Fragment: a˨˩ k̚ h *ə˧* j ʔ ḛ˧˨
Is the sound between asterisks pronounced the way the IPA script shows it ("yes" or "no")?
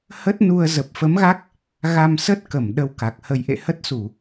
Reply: yes